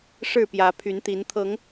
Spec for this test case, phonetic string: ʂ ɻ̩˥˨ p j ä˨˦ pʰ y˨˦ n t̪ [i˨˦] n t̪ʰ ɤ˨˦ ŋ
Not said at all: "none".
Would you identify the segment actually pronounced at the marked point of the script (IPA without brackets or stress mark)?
i˨˦